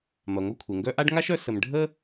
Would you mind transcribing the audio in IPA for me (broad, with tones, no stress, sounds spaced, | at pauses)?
m ɐ˩ ŋʷ ɐ˦ kʷʰ e˩ ŋ ɡ œ˦ ʔ a˥ ɖ ŋ a˥ ʃ œ˦ s ə˨ m ɖʱ ə˥